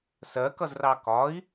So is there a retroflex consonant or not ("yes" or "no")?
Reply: no